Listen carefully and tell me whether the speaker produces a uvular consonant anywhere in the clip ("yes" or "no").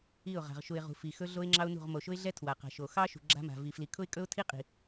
yes